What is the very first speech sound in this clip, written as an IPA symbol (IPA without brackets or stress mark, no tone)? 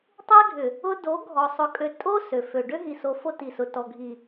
tˤ